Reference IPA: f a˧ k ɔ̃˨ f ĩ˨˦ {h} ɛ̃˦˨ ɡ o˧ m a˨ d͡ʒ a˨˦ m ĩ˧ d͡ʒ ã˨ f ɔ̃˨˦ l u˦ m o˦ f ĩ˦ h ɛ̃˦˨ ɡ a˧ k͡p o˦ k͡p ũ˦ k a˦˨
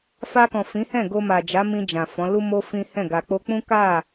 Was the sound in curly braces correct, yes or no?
yes